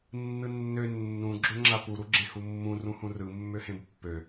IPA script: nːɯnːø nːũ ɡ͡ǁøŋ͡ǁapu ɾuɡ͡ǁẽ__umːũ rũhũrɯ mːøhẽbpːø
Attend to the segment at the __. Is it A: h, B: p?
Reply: A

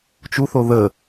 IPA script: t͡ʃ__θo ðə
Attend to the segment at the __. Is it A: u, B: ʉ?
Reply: A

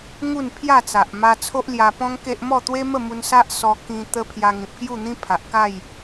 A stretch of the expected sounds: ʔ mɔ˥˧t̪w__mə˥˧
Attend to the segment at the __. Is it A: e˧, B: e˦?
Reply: B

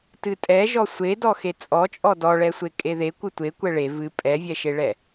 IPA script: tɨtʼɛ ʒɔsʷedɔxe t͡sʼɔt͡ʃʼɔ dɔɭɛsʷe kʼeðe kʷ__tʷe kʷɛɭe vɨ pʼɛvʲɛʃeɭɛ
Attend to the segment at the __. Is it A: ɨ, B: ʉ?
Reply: A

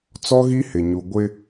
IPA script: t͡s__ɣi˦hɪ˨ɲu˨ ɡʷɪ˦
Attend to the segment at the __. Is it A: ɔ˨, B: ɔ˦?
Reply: B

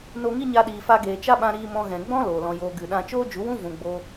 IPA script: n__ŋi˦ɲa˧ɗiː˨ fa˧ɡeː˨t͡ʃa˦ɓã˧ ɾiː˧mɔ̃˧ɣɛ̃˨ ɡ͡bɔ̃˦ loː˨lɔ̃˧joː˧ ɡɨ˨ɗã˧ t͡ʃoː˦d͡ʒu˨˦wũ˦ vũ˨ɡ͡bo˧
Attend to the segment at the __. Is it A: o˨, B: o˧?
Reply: B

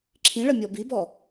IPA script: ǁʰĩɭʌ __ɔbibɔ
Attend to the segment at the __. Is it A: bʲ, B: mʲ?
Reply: B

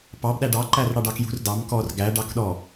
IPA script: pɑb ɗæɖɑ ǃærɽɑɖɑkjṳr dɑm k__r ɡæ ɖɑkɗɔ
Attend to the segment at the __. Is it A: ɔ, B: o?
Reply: A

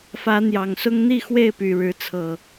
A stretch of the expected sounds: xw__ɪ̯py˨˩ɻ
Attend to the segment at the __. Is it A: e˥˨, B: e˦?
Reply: A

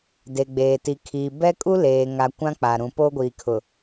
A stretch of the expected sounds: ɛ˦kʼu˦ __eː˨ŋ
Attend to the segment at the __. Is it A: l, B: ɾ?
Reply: A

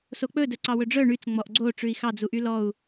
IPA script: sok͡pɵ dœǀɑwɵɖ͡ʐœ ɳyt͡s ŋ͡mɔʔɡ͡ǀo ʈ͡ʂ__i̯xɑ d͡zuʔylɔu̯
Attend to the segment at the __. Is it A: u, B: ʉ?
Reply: B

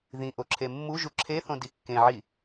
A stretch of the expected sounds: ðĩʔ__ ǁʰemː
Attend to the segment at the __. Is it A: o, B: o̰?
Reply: A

